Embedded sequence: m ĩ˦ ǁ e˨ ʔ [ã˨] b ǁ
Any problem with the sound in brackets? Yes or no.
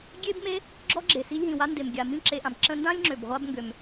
no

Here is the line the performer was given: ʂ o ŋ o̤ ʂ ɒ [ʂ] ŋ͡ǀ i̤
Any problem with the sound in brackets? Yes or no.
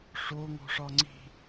yes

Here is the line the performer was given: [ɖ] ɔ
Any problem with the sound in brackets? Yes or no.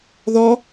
yes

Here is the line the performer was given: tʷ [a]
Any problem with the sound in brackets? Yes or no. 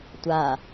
no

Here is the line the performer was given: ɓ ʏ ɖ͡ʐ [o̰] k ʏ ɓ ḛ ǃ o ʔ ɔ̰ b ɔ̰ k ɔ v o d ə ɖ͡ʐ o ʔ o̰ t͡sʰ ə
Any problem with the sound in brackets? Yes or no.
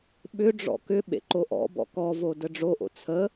yes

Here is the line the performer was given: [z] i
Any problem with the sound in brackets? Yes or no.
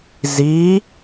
no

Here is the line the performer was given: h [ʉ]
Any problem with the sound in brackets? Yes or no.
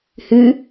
no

